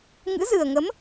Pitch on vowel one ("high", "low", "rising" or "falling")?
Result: rising